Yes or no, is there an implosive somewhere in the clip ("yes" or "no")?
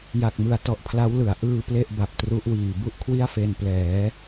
no